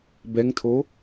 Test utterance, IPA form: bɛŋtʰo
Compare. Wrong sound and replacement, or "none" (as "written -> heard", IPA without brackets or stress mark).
none